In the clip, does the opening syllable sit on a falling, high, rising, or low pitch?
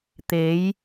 rising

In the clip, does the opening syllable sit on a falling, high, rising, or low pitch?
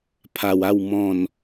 low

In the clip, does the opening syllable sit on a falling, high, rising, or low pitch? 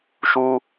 high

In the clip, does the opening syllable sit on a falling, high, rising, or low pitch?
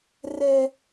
high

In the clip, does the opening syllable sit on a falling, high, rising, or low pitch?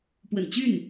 low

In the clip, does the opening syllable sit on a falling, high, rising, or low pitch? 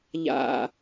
low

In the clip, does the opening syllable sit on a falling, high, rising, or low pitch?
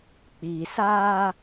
low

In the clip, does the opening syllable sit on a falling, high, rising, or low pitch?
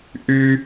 high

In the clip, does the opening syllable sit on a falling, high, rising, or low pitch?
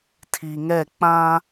low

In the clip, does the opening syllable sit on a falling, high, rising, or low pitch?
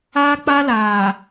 high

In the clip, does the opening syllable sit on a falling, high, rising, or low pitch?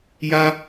high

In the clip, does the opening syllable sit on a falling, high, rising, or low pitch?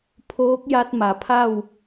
rising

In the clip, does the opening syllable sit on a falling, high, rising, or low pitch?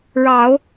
low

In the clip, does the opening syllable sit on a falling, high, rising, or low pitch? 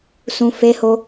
low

